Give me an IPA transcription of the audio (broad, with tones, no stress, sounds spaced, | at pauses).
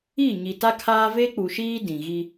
i˦˨ ɲ i˨ t a˦ kʰ aː˦ v e˦ k͡p u˨ ʃ iː˦ d ĩ˨ ɣ i˦